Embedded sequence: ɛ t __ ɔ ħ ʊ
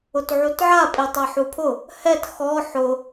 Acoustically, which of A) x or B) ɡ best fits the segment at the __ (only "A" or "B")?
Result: A